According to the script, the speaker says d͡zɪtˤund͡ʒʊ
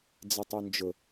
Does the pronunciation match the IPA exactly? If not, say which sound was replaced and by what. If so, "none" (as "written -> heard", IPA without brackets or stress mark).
none